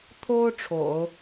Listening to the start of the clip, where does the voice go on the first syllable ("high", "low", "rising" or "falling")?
high